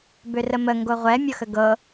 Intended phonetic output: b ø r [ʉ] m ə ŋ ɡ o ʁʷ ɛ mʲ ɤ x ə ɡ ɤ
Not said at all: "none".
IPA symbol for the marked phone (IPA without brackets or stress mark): ə